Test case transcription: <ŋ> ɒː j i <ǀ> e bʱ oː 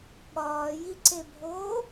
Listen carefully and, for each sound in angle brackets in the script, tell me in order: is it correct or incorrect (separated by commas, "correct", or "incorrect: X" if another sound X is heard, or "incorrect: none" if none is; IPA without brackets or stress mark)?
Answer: incorrect: ɠ, correct